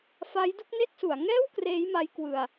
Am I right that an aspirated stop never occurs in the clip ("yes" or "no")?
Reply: yes